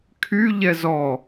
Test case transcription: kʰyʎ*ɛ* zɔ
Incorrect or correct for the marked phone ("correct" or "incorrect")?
correct